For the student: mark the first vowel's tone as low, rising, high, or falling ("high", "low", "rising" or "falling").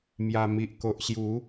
low